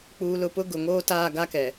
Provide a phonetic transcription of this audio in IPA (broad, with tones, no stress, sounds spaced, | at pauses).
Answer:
k͡p uː˨ l ʊ˨ p ʊ˦ ɡ ʊ˨ ŋ oː˦ t aː˦˨ ɡ a˦ k ɛ˨